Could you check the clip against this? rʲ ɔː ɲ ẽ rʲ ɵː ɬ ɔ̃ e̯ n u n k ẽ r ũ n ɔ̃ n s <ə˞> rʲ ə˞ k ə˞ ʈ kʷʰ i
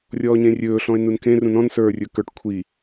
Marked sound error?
no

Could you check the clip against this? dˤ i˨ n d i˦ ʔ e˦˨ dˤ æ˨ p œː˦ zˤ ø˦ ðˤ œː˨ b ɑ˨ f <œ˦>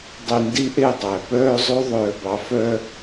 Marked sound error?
no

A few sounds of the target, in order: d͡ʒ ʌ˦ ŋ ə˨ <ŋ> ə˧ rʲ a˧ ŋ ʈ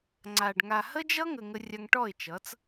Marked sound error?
no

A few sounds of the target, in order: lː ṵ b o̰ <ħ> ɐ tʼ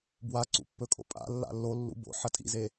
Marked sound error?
no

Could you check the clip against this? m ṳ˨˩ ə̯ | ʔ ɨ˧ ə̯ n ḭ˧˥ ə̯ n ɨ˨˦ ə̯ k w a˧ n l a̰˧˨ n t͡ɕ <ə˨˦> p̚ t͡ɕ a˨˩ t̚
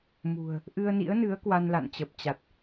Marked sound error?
yes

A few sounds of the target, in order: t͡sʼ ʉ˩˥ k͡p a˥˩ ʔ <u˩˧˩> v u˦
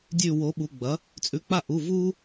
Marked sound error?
no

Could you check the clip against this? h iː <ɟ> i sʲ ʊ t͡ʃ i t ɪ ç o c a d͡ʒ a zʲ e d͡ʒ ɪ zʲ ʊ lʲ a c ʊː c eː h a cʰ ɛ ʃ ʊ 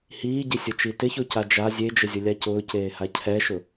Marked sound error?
no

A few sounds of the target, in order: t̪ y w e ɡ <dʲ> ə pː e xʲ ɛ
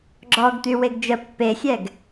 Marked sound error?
yes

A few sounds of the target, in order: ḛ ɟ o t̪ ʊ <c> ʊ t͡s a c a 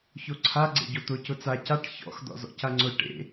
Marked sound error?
no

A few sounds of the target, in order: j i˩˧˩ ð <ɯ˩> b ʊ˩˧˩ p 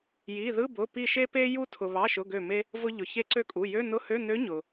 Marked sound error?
yes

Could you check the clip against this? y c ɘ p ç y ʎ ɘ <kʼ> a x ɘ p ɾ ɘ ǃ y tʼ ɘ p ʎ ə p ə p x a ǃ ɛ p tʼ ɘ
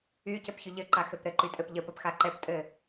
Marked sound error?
yes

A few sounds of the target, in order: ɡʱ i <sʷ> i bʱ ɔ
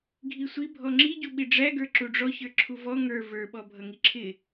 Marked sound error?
no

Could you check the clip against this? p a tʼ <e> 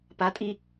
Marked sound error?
yes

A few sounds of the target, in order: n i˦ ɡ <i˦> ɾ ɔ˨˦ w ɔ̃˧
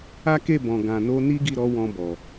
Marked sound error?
yes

